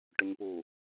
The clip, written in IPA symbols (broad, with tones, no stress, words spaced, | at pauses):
ʈʏ˨ɲpu˨